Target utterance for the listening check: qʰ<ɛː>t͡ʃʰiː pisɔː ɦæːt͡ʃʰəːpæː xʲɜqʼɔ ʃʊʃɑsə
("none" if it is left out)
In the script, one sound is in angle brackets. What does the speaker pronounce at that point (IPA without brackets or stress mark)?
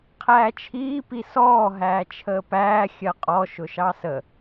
æː